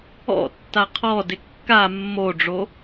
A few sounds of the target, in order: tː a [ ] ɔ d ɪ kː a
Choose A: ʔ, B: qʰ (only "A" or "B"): B